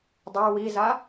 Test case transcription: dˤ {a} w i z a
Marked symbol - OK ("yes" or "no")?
yes